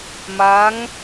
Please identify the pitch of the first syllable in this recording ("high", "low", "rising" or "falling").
rising